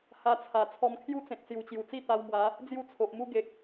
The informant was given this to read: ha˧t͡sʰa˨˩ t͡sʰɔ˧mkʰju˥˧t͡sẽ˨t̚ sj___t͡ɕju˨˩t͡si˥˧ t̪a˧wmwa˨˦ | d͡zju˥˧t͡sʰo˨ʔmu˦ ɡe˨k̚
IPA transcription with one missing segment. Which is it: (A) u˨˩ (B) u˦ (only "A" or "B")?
A